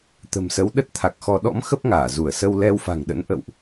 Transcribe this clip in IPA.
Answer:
t̪ ə̤˨˩ m s ə˨˦ w ɗ ə˦˥ t̚ t̪ʰ a˨˩ k̚ x ɔ˧ ɗ ɔ̰˧˥ m x ə˦˥ p̚ ŋ aː˧˩ z u˧˩ ə̯ s ə˧ w l ɛ˧ w f a̤˨˩ ŋ ɗ ə̰˧˥ n ʔ ə̰˧˨ w ʔ

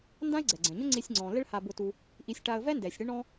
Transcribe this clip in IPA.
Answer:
n d ã˥ ɪ̯ ɡ͡ǀ ɛ˩ ɡ͡ǀ ɛ̃˩ ɲ ʊ˥ ŋ͡ǀ i˧ sʲ ŋ͡ǀ ɔ̃˩ l ɪ˥ ɭ h a˧ b ʊ˧ t u˧ | ʔ i˧ sʲ ʈ a˧ ə̯ v ɛ˥ n d ɛ˩ sʲ ɽ ɪ˥ ɳ ɔ̃˥

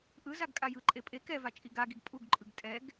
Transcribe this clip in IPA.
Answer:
ʔ ɯ z a ɡ kʼ a j ɯ ǃʼ e pʼ e k ɛ v a t͡ʃʼ i ɡ a ɡ i ɡ pʼ u ɡ ǃʼ ɯ ɡ tʼ ɛ ɡ

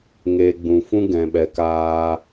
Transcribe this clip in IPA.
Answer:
ŋ e˨ ɡ͡b ũ˨ f ũ˦ ɡ ɛ̃˨ ɓ ɛ˨ k aː˧

